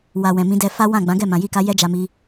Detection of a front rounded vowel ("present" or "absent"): absent